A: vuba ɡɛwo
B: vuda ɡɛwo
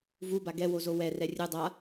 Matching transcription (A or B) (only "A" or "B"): A